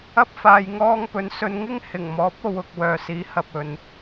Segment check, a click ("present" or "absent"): absent